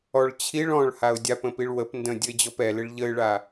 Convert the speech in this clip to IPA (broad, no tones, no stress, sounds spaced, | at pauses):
ɔ ɭ t͡ɕʰ i ɭ ɔ̃ ɭ h a ʊ̯ dʲ a p ə̃ p i ɭ w ə p n d ə̃ dʲ ə ɪ̯ d͡ʑ ɔ p ɛ l ɪ ɭ ʎ ə ɪ̯ ɭ a